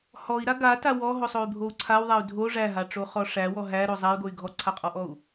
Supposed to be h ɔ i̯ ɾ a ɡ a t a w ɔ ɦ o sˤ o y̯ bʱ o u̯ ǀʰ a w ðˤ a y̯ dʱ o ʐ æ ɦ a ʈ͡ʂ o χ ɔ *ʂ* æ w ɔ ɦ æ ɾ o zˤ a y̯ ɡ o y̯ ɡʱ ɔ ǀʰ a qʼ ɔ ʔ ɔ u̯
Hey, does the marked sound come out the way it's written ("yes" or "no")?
yes